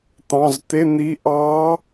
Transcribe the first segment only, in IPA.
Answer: t̪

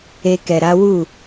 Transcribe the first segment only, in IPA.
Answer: e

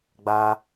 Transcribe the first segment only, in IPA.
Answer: ɡ͡b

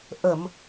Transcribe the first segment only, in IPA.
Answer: ʔ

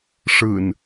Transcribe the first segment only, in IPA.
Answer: ʂ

